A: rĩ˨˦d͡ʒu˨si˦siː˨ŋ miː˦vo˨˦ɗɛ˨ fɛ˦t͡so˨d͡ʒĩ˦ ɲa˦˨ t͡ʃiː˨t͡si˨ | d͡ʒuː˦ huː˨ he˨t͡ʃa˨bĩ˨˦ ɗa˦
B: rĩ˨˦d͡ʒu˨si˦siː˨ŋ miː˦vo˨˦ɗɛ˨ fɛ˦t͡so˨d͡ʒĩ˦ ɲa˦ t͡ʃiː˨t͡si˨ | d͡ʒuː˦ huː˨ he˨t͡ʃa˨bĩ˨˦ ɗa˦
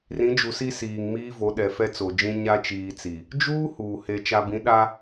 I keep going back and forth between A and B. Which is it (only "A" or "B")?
B